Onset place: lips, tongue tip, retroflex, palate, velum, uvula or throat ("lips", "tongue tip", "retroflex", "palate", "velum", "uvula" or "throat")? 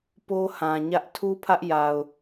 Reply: lips